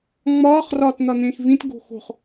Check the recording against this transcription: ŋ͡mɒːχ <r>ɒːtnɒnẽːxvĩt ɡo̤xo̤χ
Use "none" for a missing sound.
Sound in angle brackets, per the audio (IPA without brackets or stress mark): r